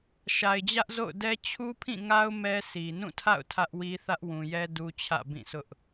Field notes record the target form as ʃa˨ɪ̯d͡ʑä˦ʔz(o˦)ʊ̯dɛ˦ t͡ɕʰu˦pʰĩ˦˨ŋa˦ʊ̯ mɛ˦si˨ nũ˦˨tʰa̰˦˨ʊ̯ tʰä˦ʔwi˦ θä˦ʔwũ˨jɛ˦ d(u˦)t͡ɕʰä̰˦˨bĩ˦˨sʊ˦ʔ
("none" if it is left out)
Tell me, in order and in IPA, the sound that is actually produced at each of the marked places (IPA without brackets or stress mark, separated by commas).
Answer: o̰˦˨, u˦